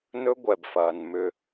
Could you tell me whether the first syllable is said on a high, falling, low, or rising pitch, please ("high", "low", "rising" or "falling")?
high